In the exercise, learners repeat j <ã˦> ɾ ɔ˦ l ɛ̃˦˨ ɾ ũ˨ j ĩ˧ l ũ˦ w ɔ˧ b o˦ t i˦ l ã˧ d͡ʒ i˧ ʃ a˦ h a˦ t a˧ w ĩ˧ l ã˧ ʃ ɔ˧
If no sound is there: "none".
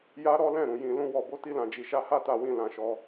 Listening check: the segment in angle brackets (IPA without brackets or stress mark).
a˦